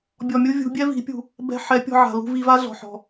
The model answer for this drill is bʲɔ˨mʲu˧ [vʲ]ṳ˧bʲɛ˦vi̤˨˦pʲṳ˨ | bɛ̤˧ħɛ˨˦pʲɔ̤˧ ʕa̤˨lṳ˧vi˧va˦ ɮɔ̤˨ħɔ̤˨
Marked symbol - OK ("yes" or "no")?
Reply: yes